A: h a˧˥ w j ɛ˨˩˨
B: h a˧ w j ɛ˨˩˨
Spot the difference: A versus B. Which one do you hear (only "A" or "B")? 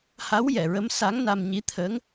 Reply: A